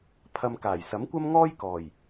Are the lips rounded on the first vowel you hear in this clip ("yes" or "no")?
no